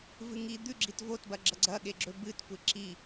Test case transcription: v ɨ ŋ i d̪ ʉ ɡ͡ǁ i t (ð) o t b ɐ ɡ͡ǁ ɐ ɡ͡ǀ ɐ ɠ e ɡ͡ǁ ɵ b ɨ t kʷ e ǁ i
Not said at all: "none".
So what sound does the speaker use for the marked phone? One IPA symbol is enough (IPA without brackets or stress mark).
v